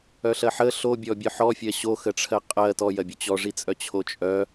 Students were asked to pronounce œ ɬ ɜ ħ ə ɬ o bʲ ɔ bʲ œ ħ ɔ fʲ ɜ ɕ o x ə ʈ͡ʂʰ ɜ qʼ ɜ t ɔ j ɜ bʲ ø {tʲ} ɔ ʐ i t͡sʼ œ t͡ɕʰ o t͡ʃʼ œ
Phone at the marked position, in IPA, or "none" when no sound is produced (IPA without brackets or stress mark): t͡ɕ